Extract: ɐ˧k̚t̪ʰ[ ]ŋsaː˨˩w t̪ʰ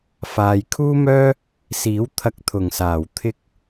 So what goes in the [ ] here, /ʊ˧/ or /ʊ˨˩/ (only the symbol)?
ʊ˨˩